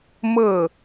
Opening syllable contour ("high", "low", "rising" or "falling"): falling